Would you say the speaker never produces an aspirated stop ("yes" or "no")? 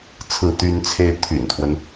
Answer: no